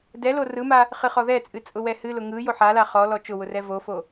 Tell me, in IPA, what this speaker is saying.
d ɛ l o r ɯ m a | χ ɨ χ ɔ ð ɛ t͡sʼ ɨ t͡sʼ ʊ w ɛ h ɨ l ʊ ŋ ɯ j o ħ a l a χ ɔ l ɔ t͡ʃ ʊ w ʊ r ɛ v o f o

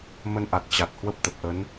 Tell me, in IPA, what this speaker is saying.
m ə˧ n ʔ a˨˩ t̚ t͡ɕ a˨˩ t̚ h w ə˦˥ p̚ t̪ ə˨˩ p̚ ʔ ə˨˦ n

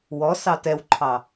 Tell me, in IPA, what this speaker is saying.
w ɔ s ɑ t ɛ w ǃʰ ɑ

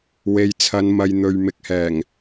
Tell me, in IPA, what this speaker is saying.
w e˨ j t͡sʰ ɐ˨˧ n m ɐ˨ j n̪ ɵ˨ ɥ m ɪ˨˥ k̚ h ɛː˨˩ ŋ

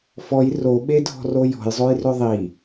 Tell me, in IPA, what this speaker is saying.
f ɔ j r o ɓ e dʱ ɔ̤ r o j ɔ̤ j zˤ o j r ʏ ðˤ i

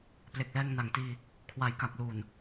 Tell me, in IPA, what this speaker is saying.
p l e˨˩ k̚ l ɛː˧ ŋ n a˨˩ ŋ t iː˧ | kʰ w a˨˩ j k a˨˩ k̚ l uː˨˩ n

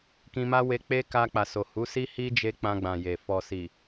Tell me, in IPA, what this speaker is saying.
k ĩ˧ m a˦ w e˧ k͡p e˦ k a˧ k͡p a˨ s o˨ h u˨˦ s i˦ h i˦ d͡ʒ e˧ k͡p ã˧ ɡ͡b ã˨ j e˨ f ɔ˨ s i˨

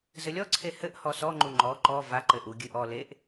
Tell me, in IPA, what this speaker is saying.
z ɘ lʲ ɔ ǀʰ e h ɘ ʔ h ɔ s ɔ ŋ͡ǃ u ŋ͡ǃ ɔ ǃ ɔ v a ǃ ɘ ʔ u ɡʲ ɨ ʔ ɔ l e ʔ

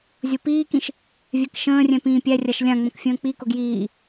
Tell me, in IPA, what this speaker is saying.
zʲ o p iː k ĩ ʃ | vʲ ɛ k ʃ ə̃ː rʲ ɛ̃ p ĩː pʲ æ rʲ a ʃ lʲ ã ŋ͡m ə̃ k fʲ ə̃ː k͡p i k ʊ ɡ j iː

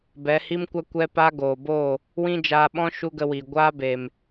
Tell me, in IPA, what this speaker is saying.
b ɛ˨˦ h i˦ m kʷ a˦ kʷ ɛ˦ p a˦ ɡ oː˨ b oː˦˨ | w ĩ˦ d͡ʒ aː˧ ɓ ɔ̃˦ ʃ u˦ ɡ ə˧ w iː˨ ɡʷ aː˦ b e˨ m

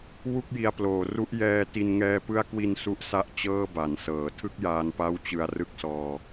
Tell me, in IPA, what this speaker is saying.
w u˥˩ k̚ j i˧ a̯ p l oː˨˩ r u˦˥ ʔ j ɛː˧ t i˧ n ŋ ɛː˦˥ p ɯ˦˥ a̯ k w i˧ n s u˦˥ ʔ s a˦˥ ʔ t͡ɕ ɤː˥˩ b a˩˦ n s ɤː˨˩ tʰ ɯ˥˩ k̚ j aː˧ n p a˦˥ w t͡ɕ ɯ˧ a̯ r ɯ˥˩ k̚ s ɔː˧

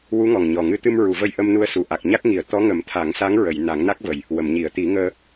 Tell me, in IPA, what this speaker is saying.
w u˧˥ ŋ ɔ˨˩ ŋ ɲ ɔ˨˩ ŋ ɨ˧˥ t̪ ɨ˧ m ɹ u˨˩˨ v ə˧ j ʔ ə˧ m n u˧ ə̯ s u˨˩ ʔ a˨˩ k̚ ɲ a˦˥ k̚ ŋ i˨˩˦ ə̯ t̪ ɔ˧˥ ŋ ə˨˩˦ m t̪ʰ a˨˩˦ ŋ s a˧˥ ŋ ɹ ə˨˩˨ j n a˨˩˦ ŋ n a˦˥ k̚ v ə˨˩ j | w ə˨˩˨ m ɲ i˨˩˨ ə̯ t̪ i˨˩˦ ŋ əː˧

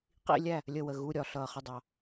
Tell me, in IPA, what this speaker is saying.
q ḭ˧˥˧ lʲ æ˥˩ | lʲ ə˥˩ w ə˨ ɣ u˧˥˧ ɾʲ ɒ˨ ɬ ʌː˨ χ ə˥˩ dˤ ɑ˨

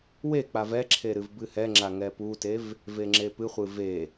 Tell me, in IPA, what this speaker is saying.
w e k͡p a v ɛ ǁʰ e ɾ ɨ v b ɨ h ɛ ŋ͡ǁ a ŋ ɛ p u t e v | v e ŋ͡ǁ e p ɨ χʷ ɨ v e

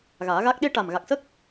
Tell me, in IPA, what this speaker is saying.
ɣ aː˨˩˦ ɣ a˦˥ k̚ ɗ e˧ ʈ a˨˩ m ɣ a˨˩ k̚ s ə˦˥ k̚

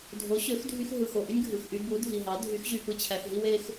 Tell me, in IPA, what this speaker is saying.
dʱ o˩˥ ɕ ø˩˥ x dʱ y˧ x ɦ ɯ˩ x o˩ ʔ y˥ nʲ ɡʱ ɯ˩ x ʔ y˧ b u˩˥ dʱ i˩ ɦ ɑ˩˥ dʱ y˩˥ x ʑ y˧ p ɯ˥˩ t͡ɕʰ æ˧ x ɦ i˥ w e˧ x

